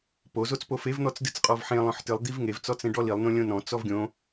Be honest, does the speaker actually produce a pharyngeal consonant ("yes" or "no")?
yes